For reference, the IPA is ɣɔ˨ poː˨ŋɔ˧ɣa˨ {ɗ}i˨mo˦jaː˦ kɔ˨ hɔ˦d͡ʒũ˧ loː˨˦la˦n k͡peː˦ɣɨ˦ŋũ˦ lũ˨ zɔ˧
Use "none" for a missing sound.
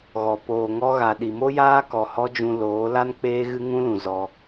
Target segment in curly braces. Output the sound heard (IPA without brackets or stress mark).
ɗ